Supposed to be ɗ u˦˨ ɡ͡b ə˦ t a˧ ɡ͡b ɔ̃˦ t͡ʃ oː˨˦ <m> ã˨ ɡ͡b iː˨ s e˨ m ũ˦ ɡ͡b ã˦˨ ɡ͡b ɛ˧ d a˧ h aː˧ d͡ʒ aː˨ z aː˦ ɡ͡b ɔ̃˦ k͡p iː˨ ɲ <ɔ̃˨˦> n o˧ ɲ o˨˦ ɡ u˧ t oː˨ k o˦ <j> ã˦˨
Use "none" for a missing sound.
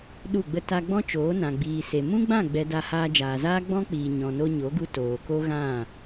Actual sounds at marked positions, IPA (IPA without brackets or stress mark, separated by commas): n, ɔ̃˨, ɣ